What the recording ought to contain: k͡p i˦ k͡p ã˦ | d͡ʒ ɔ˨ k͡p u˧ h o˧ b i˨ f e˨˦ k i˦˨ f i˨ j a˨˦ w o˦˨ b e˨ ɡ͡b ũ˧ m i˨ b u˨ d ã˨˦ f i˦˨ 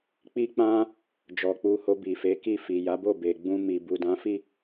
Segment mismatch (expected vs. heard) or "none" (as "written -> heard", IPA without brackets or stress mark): w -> b